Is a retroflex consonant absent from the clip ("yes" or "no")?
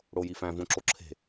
no